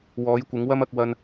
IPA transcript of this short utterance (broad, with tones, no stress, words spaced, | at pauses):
wɔː˨˥jkʷɪ˨˥ŋ wɐ˥mɐ˨˥k̚ wɐ˧n